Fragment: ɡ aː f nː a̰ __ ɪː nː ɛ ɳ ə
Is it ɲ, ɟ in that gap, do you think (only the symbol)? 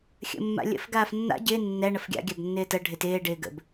ɟ